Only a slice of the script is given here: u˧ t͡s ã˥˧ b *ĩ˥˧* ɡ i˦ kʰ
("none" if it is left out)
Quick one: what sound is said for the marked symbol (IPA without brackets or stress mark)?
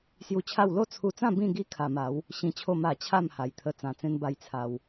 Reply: ĩ˥˧